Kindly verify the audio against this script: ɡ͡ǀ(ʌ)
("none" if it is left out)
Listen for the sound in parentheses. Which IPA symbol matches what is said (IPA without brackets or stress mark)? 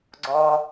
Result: ɔ